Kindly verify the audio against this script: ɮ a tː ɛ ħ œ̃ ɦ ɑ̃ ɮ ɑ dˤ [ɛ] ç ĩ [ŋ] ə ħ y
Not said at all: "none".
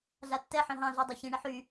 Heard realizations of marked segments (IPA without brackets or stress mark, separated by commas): ɜ, ɳ